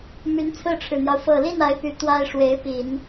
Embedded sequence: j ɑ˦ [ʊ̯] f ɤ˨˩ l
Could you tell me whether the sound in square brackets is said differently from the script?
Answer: no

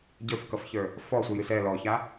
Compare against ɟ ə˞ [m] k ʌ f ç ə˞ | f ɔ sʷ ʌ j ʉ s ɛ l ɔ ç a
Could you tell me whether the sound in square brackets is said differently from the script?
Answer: yes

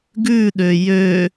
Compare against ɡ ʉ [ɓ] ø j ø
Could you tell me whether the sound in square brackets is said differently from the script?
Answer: yes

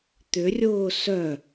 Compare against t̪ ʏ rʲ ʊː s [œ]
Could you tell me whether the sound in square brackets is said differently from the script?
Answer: no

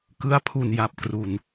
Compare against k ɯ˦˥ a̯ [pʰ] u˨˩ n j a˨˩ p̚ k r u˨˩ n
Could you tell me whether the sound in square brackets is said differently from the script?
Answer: no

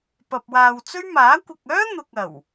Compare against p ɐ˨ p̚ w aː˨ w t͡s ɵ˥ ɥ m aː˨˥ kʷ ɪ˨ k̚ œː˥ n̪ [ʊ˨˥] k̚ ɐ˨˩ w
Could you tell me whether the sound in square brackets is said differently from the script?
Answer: yes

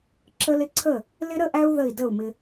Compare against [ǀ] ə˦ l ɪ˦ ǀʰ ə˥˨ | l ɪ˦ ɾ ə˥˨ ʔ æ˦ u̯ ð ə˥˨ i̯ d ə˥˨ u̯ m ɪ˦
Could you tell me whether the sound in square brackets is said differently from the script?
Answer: yes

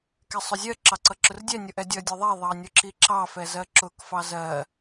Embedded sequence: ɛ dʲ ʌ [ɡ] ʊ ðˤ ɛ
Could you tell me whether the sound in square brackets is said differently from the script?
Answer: yes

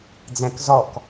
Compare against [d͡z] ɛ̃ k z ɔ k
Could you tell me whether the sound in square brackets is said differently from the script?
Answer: no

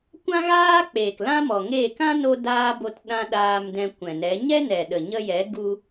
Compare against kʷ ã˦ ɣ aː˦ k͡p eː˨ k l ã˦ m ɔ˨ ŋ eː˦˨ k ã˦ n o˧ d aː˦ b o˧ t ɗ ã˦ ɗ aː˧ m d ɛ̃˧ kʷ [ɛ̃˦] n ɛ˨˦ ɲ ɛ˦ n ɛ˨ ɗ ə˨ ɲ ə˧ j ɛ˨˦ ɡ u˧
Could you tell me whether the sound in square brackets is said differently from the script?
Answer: yes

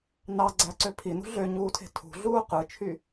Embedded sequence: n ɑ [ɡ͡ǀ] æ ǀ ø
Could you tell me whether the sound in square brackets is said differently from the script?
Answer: no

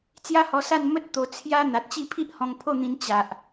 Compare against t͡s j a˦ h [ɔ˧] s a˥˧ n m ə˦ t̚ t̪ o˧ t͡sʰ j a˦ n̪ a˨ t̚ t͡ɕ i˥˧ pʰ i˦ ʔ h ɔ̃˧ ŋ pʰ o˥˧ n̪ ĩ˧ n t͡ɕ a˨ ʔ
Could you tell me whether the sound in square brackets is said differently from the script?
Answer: no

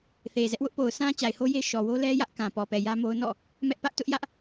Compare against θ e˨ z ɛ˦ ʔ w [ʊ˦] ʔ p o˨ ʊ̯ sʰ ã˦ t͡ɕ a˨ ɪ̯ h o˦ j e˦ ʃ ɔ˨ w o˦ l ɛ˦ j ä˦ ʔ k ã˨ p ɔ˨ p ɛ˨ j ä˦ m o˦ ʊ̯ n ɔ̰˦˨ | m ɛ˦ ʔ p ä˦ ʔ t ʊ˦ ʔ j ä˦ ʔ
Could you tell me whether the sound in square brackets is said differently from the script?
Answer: no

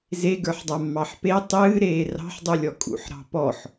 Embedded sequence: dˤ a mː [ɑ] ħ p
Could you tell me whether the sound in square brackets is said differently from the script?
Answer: no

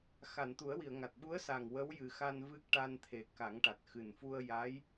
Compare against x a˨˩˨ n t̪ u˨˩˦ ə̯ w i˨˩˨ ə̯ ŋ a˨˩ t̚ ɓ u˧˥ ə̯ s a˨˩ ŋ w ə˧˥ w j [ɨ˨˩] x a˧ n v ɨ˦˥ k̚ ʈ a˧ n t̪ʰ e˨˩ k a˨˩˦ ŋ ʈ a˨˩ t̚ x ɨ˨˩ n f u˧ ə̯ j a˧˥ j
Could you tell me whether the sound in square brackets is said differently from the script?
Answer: no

